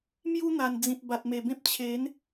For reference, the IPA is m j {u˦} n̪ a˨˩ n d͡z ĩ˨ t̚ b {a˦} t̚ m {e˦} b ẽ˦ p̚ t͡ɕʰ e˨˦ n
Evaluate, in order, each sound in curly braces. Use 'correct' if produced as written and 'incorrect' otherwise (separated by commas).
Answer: correct, incorrect, incorrect